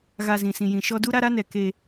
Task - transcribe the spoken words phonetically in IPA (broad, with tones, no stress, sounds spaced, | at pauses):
ɣ a˨ z ĩ˨ s ĩ˨ j ĩ˨ ʃ ɔ˦ d u˦ ɾ a˦ ɾ a˦ n ɛ˨ k e˦